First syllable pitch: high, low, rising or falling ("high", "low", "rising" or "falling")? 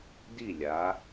falling